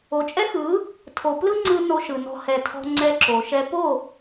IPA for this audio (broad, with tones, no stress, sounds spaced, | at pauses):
o˨ t͡ʃʼ ɛ˦ x ɯ˨˦ | tʰ o˨ p l ɯ˦ ŋ͡ǀ ɯ˧ n o˧ ʃ ɯ˨ n ɔ̤˧ h ɛ˧ tʰ ɔ̤˦ ŋ͡ǀ ɛ˧ ǁ o˨ ʃ ɛ˧ p o˦˨